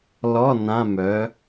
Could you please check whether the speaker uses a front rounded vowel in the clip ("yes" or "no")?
yes